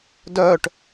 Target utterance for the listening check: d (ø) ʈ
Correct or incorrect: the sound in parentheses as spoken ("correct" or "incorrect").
incorrect